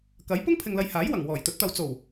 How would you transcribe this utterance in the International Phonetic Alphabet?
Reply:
k ɐ˨˥ j p ʊ˥ ŋ pʰ ɪ˨ ŋ l ɐ˨˧ j h aː˨˥ j w ɐ˨˩ ŋ w ɔː˨˩ j t̪ ɵ˨˥ t̚ t̪ ɐ˨ w t͡s o˨˩ w

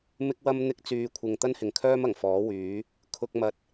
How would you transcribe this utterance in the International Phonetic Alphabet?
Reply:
m ɪ˥ k̚ w ɐ˥ m n̪ ɪ˧ k̚ t͡s yː˨ kʷʰ ɪ˨ ŋ t̪ ɐ˥ n h ɪ˨ ŋ kʰ œː˥ m ɐ˨˩ ŋ f ɔː˨˥ w yː˨˥ | kʰ ʊ˧ k̚ m ɐ˧ t̚

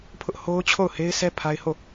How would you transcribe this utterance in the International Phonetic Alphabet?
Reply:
pʰ ʊ˦ ʔ h o˦ ʊ̯ t͡ɕʰ o˦˨ ʊ̯ h e˦ ɪ̯ sʰ ɛ˦ pʰ a˦ ɪ̯ h o˦˨

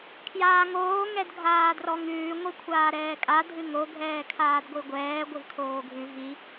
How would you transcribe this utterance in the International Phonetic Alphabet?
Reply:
kʰ j aː ŋ oː ŋ ɛ d ɡʱ aː d r ɔ ŋ ʉː ŋʷ i kʷʰ aː ɾ ɛː kʼ a dʱ ɨ ŋ o ɡʱ ɛː kʰ aː d ɡʷ i ɡʷ ɛː ɡʷ ɪ v kʰ oː ɡʱ ʉ v i

